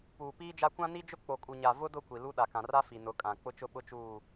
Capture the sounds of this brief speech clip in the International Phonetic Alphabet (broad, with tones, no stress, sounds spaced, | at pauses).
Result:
p uː˨ p iː˦ d͡ʒ a˦ kʷ ã˦ n i˦ d͡ʒ ʊ˦ k͡p o˨ kʼ u˨ ɲ a˨ v ʊ˦ d ʊ˦˨ kʷ i˨ l u˦ ɗ a˨ k ã˨ r a˦ f i˨ n ʊ˨˦ kʼ ã˨ k͡p ʊ˦ t͡ʃ ʊ˦ ɓ ʊ˦ t͡ʃ uː˦˨